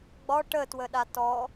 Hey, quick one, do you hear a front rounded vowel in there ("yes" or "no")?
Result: no